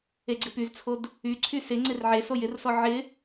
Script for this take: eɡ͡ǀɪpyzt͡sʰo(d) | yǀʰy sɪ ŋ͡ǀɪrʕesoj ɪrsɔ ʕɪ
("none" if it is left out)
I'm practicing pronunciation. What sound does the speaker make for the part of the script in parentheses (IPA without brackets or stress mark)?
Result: d